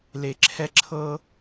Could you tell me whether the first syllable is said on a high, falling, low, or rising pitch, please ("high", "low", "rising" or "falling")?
low